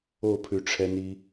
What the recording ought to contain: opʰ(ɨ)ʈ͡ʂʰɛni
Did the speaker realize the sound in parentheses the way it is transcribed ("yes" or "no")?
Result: no